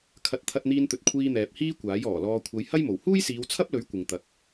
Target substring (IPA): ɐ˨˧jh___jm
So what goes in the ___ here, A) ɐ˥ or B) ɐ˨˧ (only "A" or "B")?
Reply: A